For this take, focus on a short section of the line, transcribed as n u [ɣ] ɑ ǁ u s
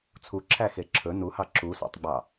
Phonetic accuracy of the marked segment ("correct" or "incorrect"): incorrect